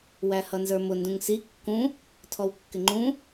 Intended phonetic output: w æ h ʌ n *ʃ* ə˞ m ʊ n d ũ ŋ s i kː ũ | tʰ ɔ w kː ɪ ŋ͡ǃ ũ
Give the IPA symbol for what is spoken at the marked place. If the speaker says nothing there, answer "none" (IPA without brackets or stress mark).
z